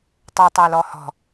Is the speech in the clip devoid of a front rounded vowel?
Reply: yes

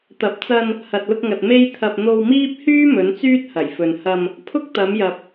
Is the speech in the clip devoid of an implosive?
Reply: yes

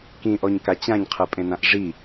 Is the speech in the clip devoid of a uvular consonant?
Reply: no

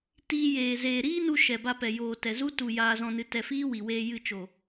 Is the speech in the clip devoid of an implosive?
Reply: yes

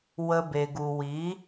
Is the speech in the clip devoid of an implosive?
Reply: yes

